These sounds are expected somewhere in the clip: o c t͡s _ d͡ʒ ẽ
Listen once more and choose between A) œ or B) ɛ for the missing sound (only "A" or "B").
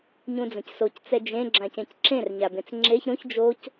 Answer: B